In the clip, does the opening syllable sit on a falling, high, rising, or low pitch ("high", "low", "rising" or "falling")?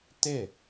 falling